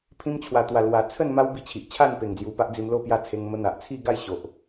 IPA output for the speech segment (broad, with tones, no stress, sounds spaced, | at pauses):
pʰ ĩ˧ m t͡ɕʰ w a˨˩ t̪ w a˨˩ l w a˨˩ t͡sʰ ə˥˧ n m a˦ w b i˧ t͡ɕʰ i˨ ʔ t͡ɕʰ a˥˧ n p e˨˩ ŋ d͡z j u˨˩ p a˦ ʔ d͡z i˧ m l o˥˧ p j a˥˧ t͡sʰ e˧ ŋ m ə˧ n̪ a˨ ʔ t͡sʰ i˥˧ ɡ a˥˧ j ɕ o˨ ʔ